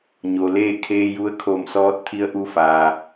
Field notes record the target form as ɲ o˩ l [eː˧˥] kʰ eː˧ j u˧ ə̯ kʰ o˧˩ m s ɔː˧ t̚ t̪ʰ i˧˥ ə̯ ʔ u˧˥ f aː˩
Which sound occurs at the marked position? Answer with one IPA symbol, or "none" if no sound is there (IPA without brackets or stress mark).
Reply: eː˥˨